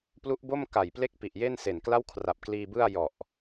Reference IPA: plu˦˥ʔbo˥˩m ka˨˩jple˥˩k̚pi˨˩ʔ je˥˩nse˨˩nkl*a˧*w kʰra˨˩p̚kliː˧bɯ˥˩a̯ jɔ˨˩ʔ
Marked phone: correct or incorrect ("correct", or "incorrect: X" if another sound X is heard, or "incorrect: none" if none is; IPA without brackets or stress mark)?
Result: incorrect: a˥˩